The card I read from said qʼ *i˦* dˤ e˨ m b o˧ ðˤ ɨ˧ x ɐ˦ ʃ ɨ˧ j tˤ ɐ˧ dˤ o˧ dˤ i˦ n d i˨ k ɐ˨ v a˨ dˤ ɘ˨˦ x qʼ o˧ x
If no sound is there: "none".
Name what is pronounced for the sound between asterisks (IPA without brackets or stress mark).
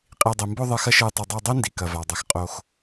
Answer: i˨